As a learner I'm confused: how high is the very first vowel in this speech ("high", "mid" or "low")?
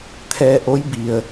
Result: mid